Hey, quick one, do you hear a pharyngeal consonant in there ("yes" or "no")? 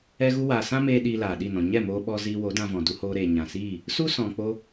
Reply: no